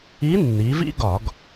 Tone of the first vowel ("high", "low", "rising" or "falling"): rising